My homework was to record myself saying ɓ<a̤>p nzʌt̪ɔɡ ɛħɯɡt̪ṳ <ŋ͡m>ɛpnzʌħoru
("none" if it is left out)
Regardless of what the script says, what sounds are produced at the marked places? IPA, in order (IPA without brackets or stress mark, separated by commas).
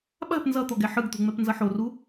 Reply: a̤, ŋ͡m